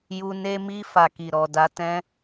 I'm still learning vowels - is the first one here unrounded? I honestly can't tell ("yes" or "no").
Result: no